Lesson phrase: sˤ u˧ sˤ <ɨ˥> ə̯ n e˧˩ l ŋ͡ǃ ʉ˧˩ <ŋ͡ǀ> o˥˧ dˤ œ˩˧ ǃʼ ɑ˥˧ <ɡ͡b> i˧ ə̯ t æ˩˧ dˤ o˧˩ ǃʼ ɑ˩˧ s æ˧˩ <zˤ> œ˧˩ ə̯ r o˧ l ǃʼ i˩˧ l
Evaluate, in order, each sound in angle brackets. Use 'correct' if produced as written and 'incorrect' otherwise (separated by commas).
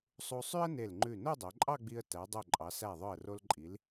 incorrect, incorrect, correct, incorrect